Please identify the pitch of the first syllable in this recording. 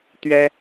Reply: high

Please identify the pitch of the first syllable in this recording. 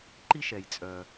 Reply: high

